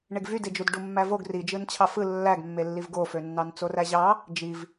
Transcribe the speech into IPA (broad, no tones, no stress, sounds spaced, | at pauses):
ɳ e ɡ v y d e d͡ʒ u d ɖ u mː æ v o ɡ r i d͡ʒ ɯ n t͡ɕʰ ɑ f ɯ lː æ ɡ mː e lː i v ɡ o f ø nː ɑ n t͡s o r æ ʑ ɑ | d͡ʒ i v